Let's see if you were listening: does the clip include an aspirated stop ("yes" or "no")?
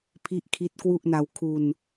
yes